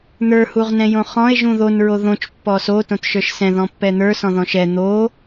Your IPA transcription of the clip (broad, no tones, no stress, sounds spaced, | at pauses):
n̪ ə˞ h u ʁ n ɛ̃ j õ χ ɔ̃ e̯ ʒ ũ ð o n ɹ o ð õ t͡ʃ pː ɔ s o t õ t ʃ ə˞ ʃ s ɛ̃ ð ɔ̃ pː ɛ n̪ ə˞ s ɔ̃ ð ɔ̃ ʃ ɛ n̪ o